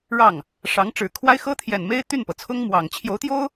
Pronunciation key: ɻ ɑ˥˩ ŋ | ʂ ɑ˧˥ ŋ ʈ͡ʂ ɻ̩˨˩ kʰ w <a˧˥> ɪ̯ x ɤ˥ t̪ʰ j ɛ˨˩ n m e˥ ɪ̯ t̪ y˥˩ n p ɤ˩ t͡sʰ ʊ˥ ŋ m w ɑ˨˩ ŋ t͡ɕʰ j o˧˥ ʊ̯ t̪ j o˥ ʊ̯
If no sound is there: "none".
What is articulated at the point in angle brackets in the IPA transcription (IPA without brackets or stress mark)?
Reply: a˥